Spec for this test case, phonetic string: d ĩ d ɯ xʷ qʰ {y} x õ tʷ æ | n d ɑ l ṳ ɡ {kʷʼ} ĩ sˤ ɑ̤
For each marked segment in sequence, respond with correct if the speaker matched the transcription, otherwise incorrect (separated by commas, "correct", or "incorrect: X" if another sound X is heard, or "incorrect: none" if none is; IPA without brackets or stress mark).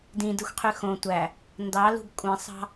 correct, correct